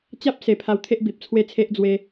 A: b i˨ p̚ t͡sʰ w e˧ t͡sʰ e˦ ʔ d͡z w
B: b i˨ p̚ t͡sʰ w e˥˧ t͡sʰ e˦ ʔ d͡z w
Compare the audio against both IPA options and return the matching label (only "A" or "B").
B